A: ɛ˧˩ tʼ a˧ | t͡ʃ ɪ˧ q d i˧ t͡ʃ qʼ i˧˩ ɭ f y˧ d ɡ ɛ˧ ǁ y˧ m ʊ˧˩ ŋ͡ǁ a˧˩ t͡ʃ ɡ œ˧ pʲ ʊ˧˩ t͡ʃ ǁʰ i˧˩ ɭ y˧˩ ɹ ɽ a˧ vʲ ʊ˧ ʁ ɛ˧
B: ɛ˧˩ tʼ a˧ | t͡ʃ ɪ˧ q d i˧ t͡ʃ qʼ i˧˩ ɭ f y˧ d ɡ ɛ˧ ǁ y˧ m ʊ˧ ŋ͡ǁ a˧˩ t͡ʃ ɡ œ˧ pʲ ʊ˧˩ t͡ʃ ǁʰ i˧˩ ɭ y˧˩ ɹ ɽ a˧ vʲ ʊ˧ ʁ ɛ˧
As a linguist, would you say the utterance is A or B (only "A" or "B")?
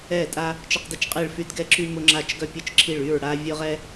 B